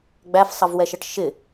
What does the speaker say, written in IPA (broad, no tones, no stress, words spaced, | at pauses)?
ɡ͡bæfsˤʌvwɛʃʌʈ ʃɪ